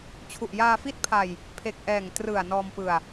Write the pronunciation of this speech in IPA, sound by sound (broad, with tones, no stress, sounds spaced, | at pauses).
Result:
t͡ɕʰ u˨˩ ʔ j aː˧ f i˥˩ t̚ pʰ a˧ j | pʰ e˨˩ k̚ ʔ ɛː˨˩ ŋ t r ɯ˨˩ a̯ n ɔː˧ m p ɯ˧ a̯